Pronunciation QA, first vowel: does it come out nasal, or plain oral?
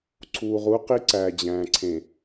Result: oral